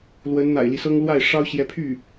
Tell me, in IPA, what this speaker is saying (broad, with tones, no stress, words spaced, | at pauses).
lwə˧˥nn̪a̰˨˩ɪ̯li˦sɤ˥ŋ lwa˥˩ɪ̯ ʂɑ˥ʊ̯ ɕjɛ˧˥pʰy˥˩